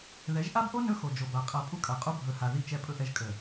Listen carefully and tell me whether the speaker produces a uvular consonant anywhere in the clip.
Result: yes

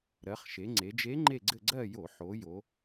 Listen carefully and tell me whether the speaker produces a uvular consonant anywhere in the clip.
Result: yes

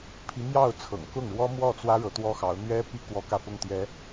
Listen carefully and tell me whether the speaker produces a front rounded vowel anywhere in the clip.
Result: no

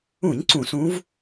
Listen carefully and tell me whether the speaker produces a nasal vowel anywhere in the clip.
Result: yes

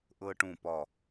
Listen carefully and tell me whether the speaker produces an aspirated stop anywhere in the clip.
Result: no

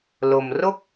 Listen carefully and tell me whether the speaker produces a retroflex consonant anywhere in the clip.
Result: no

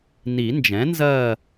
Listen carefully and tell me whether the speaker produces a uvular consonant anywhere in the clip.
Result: no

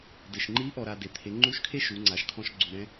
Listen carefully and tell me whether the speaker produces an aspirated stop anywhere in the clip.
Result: yes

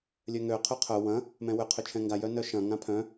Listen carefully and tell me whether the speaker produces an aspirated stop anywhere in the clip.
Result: yes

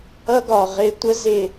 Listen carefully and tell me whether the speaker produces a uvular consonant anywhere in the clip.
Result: yes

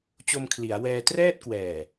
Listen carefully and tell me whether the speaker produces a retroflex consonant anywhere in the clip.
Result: no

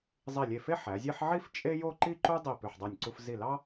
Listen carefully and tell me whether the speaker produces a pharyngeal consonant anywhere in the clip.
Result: yes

